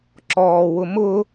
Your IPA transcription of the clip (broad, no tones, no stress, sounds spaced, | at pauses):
ǁ ɔː w ʊ m ʊ